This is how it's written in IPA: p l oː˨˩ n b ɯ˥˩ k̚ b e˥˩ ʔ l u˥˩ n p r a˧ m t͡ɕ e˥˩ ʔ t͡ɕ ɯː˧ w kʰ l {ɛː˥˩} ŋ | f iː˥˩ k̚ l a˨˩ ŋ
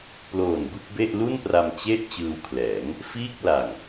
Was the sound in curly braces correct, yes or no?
no